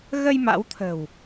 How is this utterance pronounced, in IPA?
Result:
ɣ ə˧ j m a̰˧˥ w t̪ʰ ə̤˨˩ w

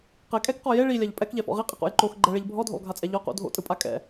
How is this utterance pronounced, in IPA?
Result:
q ɛ kʼ ɛ k q ɔ j e ɭ i lʲ a ʎ pʼ ɛ k ʎ ɛ f ɔ̰ ʁ i qʼ i q o̰ j ǃ o x ɡ͡ǃ ɛ ɭ e ʎ bʱ ɔ dʱ o̰ lˠ ɡʱ a t͡sʼ ɛ ʎ ɔ q o̰ dʱ o̰ tʼ ɯ pʼ a kʼ ɛ̰

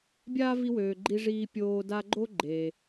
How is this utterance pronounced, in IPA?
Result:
bʲ aː˥ v i˦ w øː˨ ɡ͡ǃ i˦ ʐ iː˦ pʲ oː˦ d a˦ ɡ͡ǃ o˥ ɡ͡ǃ eː˨

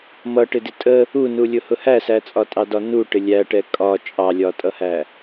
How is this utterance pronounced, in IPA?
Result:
m ʌ ʈ ɪ d ɪ tʼ ə | u n u lʲ ʊ h ʊ h æ s æ t͡sʼ ɒ tʼ ɑ d ɒ n u ʈ ɪ lʲ æ ʈ ɛ kʼ ɒ t͡ʃʼ ɑ lʲ ɒ tʼ ʌ h æ

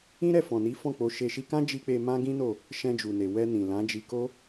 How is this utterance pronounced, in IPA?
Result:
ĩ˦ ɾ ɛ˦˨ f ɔ̃˨ n i˨˦ f ɔ̃˦˨ k͡p o˧ ʃ e˧ ʃ i˧ k ã˦ d͡ʒ i˧ k͡p e˧ m ã˦ ɡ ĩ˦ n o˦˨ | ʃ ɛ̃˧ d͡ʒ u˨ n e˨ w ɛ˧ n ĩ˨ l ã˨˦ d͡ʒ i˧ k o˦

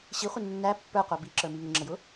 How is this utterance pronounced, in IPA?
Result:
ɕ i χʷ ɪ nː æ pː ə˞ qʷ ɑ b i ǁ ə˞ m i ŋ ʊ ŋ͡ǁ ə j ʊ

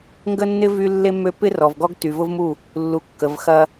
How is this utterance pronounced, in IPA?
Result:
ŋ ɡ ə˦ nː ɪ˦ v y˦ lː e˦ mː ø˦ p ɪ˦ r ɔ˨ v ɡ ɔ˦ ɡ t y˨ v ʊ˦ v m u˦˨ | lː u˨ kː ə˨ v x ɐ˦

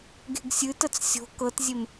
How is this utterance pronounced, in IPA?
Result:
ɡ e̤ ɡ sʲ ɨ t ə t͡s sʲ o̤ k ɤ t zʲ e m

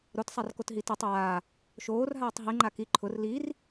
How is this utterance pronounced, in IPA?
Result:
ɾ o t sˤ a r k o t ɦ i t i tˤ aː | ʃ oː r ɦ aː tˤ ɦ i ŋ͡ǃ a k i ǃʰ ʊ r l i r

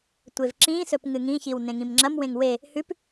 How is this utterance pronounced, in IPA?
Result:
tʷ e v ǁ ĩ s ɵ p ŋ ɨ ŋ ĩ ç i w n ẽ ŋ ĩ m ŋ͡ǁ ɐ m w ẽ ŋ w e | h ʉ p

